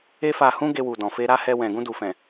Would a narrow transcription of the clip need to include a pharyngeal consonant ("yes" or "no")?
no